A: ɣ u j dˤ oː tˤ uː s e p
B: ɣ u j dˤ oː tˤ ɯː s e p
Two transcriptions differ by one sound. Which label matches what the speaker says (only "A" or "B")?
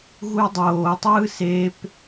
B